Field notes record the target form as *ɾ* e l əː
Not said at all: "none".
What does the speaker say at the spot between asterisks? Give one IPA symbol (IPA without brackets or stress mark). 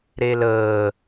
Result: ɾ